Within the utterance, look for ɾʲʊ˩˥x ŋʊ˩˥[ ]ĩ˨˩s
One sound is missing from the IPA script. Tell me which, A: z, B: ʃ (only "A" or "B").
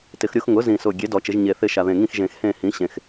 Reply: A